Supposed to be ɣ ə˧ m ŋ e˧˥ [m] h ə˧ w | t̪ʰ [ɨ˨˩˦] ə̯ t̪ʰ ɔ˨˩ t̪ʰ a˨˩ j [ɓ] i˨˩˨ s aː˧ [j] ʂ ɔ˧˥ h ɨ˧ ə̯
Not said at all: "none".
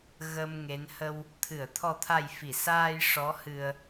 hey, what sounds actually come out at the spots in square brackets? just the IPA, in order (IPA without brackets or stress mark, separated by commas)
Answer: n, ɨ˨˩˨, f, j